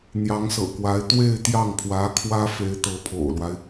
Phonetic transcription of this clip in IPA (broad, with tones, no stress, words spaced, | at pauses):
n̪jɑ˧˥ŋsɤ̰˨˩kwa˧˥ɪ̯ t̪we˥˧ɪ̯ t̪jɑ˥˩ŋpʰwä˧˥kʰwä˥fe˧˥ɪ̯ t̪ɤ˧˥pʰo̰˨˩ʊ̯lwa˦ɪ̯